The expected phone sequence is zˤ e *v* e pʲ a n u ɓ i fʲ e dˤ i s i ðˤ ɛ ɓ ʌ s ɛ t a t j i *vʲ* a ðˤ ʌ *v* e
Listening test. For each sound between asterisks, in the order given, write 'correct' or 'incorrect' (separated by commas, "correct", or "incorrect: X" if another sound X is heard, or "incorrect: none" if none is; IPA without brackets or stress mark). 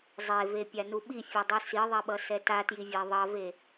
correct, correct, correct